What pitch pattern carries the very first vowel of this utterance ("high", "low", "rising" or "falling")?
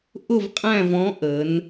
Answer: falling